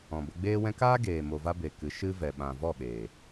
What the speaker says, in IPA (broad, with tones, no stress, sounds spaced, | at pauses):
ɔ̃˨ b ə˧ ɡ͡b eː˦ w ɛ̃˦ k aː˦ ɡ eː˨ m o˨ v a˧ b e˨ k ɨ˨˦ ʃ ɨ˦ v ɛ˨ ɓ ã˨ v ɔ˦˨ ɓ eː˨